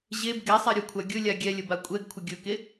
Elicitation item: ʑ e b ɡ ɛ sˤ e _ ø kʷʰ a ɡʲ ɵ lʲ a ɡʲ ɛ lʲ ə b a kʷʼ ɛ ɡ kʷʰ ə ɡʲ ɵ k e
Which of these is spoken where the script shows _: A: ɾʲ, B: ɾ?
A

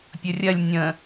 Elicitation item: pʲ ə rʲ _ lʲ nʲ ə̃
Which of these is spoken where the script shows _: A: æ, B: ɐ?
B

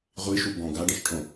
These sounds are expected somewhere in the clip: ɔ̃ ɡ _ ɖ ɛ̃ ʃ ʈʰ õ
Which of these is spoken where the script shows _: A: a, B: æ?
A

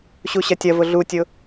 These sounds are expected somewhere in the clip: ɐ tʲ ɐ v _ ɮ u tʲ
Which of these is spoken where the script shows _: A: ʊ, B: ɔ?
A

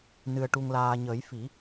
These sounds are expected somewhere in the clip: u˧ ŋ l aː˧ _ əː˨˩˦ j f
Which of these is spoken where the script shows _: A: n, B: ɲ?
B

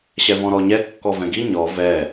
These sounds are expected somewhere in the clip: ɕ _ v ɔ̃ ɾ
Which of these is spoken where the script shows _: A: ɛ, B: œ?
A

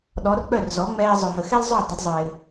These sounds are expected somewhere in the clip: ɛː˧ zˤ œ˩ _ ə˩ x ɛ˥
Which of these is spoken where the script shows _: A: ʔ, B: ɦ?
B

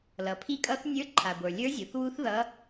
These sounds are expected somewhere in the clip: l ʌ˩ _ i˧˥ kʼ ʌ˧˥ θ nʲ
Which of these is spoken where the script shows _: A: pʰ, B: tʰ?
A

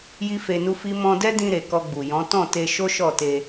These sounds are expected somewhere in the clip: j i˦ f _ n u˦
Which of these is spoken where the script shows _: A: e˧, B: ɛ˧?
A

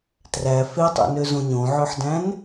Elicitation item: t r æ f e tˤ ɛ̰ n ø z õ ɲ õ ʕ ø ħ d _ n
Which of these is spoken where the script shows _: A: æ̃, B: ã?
A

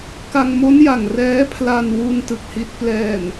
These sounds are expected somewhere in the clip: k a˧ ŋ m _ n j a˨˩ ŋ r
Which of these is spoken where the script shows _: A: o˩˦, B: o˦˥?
B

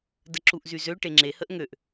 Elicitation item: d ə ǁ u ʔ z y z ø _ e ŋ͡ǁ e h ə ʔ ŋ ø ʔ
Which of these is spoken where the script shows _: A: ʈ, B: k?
A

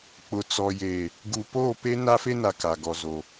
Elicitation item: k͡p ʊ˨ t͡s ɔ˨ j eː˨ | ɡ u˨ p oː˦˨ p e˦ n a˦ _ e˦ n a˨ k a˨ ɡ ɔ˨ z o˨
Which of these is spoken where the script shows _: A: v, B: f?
B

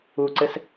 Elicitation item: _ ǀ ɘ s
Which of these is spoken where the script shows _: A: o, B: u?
B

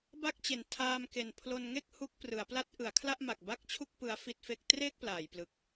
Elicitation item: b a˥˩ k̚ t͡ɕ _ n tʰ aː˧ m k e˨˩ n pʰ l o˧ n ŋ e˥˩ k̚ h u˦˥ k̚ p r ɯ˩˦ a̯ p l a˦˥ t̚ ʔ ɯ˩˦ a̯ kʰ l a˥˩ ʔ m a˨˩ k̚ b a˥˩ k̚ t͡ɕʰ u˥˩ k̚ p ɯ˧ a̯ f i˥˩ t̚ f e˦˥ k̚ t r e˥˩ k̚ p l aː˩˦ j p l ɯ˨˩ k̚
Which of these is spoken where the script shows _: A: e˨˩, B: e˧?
A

